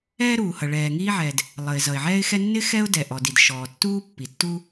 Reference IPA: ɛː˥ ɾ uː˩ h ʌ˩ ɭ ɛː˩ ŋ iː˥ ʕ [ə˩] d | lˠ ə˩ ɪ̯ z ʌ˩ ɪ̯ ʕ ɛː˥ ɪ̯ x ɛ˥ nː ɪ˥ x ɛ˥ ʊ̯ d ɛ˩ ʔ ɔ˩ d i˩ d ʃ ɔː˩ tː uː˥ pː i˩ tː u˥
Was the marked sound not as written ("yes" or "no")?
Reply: yes